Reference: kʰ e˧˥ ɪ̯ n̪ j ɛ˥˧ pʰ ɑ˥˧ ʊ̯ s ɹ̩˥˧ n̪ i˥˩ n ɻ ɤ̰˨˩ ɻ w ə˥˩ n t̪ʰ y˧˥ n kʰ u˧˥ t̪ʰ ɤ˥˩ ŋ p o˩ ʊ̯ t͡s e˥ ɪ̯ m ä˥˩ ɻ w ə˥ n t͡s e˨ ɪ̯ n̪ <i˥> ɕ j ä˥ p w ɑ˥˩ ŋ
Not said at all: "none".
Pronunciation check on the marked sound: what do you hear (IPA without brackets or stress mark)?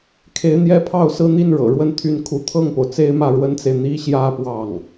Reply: i˥